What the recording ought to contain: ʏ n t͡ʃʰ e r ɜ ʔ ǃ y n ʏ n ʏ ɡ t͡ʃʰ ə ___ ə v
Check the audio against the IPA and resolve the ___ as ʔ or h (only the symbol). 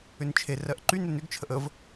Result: ʔ